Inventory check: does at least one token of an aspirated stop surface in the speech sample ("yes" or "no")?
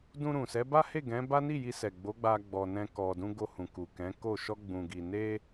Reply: no